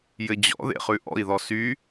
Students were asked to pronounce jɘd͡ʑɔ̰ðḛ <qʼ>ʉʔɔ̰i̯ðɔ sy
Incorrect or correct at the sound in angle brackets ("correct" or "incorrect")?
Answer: incorrect